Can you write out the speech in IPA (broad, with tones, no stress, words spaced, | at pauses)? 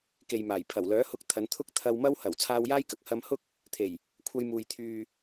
ke˨jmaː˨˩j pʰɐ˨˩wlœː˨˥hʊ˧k̚ t̪ʰɐ˨˧nt̪ʰʊ˥k̚ t̪ʰɐ˧wmɐ˥w hɐ˨˩w t͡sʰaː˧wjaː˥jkɐ˨k̚ hɐ˧mhʊ˥k̚ | t̪ʰe˨˩j | kʷʰɐ˧jmuː˨j t̪ʰyː˨